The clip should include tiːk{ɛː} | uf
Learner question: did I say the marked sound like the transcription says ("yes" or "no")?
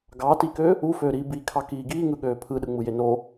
no